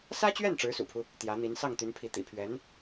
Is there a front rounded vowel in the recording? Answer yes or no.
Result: yes